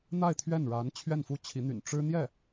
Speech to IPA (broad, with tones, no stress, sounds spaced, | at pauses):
n̪ a˥˧ ɪ̯ t̪ʰ ɥ ɛ˥˩ n ɻ a˧˥ n t͡ɕʰ ɥ ɛ˥˩ n f u˥ t͡ɕʰ i˧˥ n̪ y̰˨˩ n ʈ͡ʂ ɻ̩˥ n̪ j ɛ˥˩